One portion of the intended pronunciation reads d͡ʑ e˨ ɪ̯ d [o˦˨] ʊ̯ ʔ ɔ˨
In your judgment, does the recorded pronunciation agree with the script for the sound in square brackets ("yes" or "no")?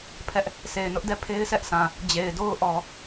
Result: no